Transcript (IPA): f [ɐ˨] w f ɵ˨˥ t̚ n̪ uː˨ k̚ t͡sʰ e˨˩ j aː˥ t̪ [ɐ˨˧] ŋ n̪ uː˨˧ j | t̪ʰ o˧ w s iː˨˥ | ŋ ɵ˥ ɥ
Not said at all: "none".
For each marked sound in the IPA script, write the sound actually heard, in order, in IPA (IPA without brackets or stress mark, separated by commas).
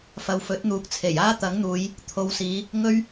ɐ˨, ɐ˨˥